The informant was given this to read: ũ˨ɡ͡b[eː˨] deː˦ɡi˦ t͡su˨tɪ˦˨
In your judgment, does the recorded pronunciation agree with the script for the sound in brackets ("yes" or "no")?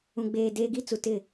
yes